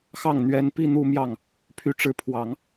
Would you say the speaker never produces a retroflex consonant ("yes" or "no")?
no